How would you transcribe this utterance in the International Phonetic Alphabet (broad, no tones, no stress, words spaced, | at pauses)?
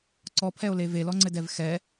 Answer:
ǀɔpʰɛo̯le velɔŋ͡ǀɘdɛv xɛ